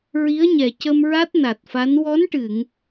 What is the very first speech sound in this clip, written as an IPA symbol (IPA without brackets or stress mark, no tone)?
ɹ